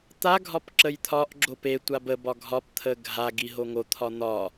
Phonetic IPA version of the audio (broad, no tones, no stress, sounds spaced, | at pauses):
t̪ a ɡʱ ɒ p ǁ ə j t̪ʰ ɒ ʔ ɡ͡ǁ o p e tʷ a b ə b ɒ ɡʱ ɒ p t̪ʰ ə ɡʱ a ɡ i ɦ o ŋ o t̪ʰ ɒ n̪ ɒ